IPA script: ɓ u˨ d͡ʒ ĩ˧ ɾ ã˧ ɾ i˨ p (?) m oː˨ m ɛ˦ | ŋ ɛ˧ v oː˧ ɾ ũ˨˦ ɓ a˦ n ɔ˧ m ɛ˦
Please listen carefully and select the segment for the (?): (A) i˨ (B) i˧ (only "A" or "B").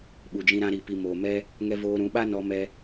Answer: A